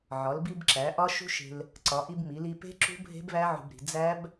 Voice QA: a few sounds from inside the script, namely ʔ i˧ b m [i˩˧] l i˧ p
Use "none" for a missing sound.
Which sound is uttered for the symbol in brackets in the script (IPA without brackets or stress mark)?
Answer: i˩˧